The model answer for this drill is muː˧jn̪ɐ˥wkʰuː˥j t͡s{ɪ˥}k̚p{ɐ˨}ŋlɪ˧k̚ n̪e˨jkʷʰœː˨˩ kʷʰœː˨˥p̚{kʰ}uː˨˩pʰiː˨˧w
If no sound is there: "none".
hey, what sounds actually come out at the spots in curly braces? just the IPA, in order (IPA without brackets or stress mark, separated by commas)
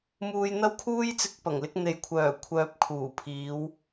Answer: ɪ˧, ɐ˨˩, kʰ